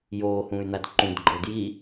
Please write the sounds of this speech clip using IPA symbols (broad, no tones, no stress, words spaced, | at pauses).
joːhũːy̯n̪ad ǃũdɡ͡ǃɤ dji